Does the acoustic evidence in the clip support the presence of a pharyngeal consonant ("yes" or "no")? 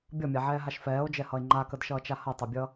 yes